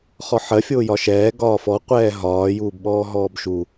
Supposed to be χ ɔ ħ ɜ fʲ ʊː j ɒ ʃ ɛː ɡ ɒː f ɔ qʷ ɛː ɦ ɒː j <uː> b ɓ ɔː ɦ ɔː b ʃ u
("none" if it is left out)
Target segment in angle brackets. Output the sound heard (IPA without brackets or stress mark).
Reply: uː